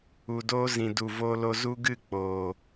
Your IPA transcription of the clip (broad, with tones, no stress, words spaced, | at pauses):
u˨doː˦ zĩ˨du˨ voː˧lo˧ zu˦ɡɨ˦˨ k͡poː˨